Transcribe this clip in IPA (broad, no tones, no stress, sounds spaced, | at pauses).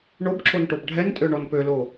ɳ o b ǁ o n ʈ o b ɖʱ ɛ n tʼ ø ɳ ɔ n p ø l o